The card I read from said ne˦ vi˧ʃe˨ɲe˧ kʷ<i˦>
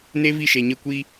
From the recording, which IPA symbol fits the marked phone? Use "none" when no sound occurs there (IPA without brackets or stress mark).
i˧